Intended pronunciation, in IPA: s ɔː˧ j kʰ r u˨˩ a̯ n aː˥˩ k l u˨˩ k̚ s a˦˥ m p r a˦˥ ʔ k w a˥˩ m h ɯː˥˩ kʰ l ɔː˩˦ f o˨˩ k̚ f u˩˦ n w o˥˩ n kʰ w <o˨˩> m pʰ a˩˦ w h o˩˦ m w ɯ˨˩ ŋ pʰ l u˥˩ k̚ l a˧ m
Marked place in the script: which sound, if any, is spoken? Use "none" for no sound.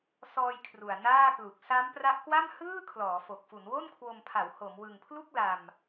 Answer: o˧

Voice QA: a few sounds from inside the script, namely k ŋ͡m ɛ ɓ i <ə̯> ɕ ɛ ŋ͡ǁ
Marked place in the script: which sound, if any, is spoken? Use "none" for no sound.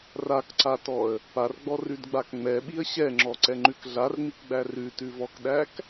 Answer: ə̯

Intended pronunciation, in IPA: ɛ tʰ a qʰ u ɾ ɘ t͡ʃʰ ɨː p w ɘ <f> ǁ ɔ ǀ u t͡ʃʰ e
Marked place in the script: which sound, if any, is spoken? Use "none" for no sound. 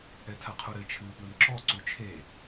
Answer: m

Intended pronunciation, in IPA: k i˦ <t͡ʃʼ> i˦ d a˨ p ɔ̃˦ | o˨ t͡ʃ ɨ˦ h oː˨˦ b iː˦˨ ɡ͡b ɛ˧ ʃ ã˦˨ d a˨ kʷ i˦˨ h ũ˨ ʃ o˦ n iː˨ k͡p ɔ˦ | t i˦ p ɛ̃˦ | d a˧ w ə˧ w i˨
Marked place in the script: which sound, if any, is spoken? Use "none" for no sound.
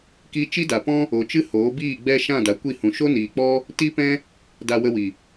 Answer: t͡ʃ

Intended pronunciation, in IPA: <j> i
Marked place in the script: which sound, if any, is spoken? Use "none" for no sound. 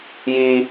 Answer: j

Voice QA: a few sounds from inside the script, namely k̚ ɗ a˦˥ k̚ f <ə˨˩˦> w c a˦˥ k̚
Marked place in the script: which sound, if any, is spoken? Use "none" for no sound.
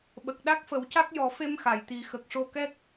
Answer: ə˨˩˦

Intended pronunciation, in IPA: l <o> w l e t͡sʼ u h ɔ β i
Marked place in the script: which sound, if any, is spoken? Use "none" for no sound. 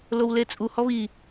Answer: o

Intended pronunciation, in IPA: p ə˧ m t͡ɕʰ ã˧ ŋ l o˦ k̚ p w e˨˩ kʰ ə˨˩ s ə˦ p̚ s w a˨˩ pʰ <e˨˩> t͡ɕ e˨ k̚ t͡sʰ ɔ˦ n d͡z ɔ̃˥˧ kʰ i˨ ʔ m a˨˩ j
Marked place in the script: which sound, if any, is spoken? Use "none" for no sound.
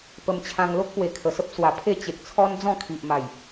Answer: e˥˧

